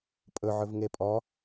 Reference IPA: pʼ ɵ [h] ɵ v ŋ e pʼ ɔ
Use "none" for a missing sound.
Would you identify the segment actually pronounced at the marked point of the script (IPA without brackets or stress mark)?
ʕ